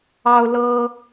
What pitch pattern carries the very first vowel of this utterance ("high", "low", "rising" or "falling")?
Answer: high